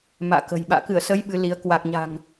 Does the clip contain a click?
no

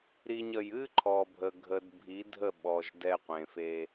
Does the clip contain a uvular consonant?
yes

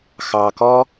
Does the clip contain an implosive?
no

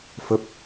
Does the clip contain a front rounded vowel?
no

